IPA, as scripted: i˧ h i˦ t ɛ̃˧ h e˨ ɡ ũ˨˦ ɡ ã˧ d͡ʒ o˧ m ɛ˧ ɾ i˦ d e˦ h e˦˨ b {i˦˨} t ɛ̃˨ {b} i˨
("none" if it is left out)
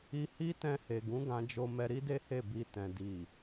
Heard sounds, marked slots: i˧, d

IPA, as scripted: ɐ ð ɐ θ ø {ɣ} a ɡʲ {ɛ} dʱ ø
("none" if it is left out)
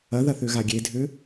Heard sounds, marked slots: ɣ, e

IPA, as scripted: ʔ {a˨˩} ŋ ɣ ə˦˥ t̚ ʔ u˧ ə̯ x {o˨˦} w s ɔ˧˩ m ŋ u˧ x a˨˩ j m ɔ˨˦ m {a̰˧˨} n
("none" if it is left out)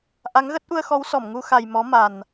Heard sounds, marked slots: a˨˦, ɔ˨˦, a˨˩

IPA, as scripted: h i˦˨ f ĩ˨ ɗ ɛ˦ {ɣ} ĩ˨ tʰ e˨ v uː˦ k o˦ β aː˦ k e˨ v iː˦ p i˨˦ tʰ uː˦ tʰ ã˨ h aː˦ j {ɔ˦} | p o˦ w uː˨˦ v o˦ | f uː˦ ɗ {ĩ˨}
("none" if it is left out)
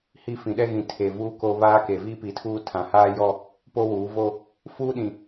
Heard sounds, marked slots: ɣ, ɔ˦, ĩ˨

